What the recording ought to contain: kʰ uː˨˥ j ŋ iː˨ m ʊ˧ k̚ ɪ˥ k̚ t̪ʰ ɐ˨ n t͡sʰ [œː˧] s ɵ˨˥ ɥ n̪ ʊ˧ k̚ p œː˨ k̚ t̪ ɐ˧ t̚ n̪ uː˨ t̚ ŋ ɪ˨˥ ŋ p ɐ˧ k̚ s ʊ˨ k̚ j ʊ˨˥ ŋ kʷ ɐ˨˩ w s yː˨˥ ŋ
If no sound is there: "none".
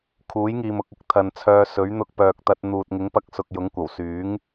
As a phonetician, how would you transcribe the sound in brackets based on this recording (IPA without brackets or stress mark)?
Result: œː˧